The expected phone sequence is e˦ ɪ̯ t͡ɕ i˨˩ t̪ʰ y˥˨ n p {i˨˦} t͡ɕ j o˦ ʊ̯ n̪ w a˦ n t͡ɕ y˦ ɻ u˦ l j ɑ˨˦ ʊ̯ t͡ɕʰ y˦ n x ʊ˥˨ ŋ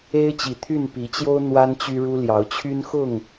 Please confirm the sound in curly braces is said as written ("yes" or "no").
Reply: yes